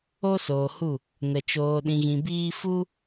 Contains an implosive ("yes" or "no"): yes